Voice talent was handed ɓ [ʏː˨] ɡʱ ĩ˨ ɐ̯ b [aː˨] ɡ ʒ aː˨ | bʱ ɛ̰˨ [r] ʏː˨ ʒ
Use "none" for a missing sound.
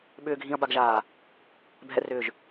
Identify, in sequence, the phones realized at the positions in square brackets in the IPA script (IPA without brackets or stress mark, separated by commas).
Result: ʏː˨, a˨, r